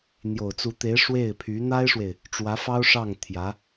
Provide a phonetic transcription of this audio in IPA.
n̪ j o˨˩ ʊ̯ t͡s u˧˥ t̪ e˧˥ ɪ̯ ʂ w e˥˩ ɪ̯ pʰ y˧˥ n̪ a˥ ɪ̯ ʂ w e˨ ɪ̯ | ʈ͡ʂ w ä˧˥ f ɑ˥ ʊ̯ ʂ ɑ˥˩ ŋ t̪ʰ j ä˧˥

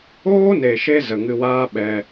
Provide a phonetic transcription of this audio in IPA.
oː˦ n e˨ ʃ e˧ z ə˨ ŋ ɨ˧ w aː˦ ɓ ɛ˧

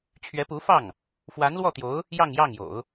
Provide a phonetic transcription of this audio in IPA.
t͡ɕʰ ɥ ɛ˧˥ p u˧˥ f ɑ˥˩ ŋ | f w a˧˥ n l w ɔ˥˩ t̪ j o˧˥ ʊ̯ | j ɑ˥˧ ŋ j ɑ˥˩ ŋ j o̰˨˩˦ ʊ̯

